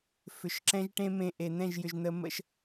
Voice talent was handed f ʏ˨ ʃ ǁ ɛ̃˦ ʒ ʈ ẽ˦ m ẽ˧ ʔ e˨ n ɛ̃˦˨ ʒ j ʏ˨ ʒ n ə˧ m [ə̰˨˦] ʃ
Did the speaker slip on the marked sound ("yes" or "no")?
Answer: yes